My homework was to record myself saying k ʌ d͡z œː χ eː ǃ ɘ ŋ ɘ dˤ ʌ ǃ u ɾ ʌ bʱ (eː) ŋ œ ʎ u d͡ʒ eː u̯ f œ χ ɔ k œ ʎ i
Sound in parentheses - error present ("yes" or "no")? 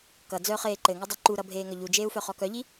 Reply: no